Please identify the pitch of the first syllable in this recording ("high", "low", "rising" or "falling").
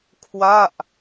falling